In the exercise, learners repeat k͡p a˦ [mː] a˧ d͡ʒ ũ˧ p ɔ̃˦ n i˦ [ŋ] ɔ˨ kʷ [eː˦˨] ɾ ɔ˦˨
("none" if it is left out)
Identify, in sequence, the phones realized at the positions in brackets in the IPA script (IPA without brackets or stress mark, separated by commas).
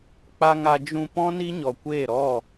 ŋ, ɲ, eː˦˨